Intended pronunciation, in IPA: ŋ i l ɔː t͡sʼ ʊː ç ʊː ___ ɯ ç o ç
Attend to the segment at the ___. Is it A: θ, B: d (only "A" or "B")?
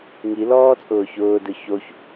B